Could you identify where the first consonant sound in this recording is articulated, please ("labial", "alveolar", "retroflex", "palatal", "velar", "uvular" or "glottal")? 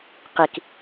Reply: uvular